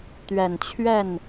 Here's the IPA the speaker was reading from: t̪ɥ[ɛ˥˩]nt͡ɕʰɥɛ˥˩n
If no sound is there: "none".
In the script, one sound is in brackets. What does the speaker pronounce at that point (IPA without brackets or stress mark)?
ɛ˨˩